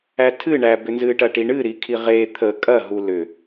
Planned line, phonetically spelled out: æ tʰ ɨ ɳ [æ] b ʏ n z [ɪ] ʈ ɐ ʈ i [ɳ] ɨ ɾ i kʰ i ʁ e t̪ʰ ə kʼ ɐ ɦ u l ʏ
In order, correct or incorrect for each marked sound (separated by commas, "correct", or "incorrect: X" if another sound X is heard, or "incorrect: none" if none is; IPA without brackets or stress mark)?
correct, incorrect: ɨ, correct